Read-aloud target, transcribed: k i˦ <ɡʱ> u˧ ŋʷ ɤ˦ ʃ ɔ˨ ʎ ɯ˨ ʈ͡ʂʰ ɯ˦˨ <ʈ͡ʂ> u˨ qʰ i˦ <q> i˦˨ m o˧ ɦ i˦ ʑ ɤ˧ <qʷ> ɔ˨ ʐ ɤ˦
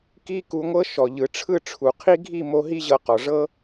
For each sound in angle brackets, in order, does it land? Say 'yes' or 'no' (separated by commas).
no, no, no, no